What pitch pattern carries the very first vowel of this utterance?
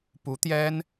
rising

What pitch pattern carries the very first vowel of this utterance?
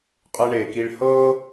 low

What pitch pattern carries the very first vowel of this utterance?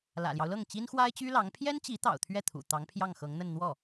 low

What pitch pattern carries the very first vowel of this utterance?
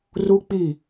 high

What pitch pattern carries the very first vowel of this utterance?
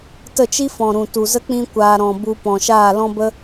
falling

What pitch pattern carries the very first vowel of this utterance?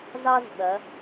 high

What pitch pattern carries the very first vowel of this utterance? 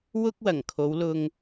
high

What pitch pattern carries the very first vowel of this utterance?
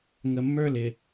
low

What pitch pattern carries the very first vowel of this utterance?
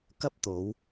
high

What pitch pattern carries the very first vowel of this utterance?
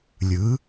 rising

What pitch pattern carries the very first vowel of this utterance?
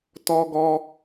high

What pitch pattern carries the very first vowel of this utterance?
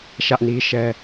high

